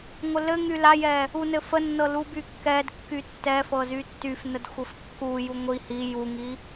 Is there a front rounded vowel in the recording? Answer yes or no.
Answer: yes